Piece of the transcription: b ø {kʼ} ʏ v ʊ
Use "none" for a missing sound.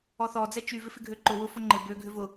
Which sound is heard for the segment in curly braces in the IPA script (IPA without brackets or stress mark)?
ɡʱ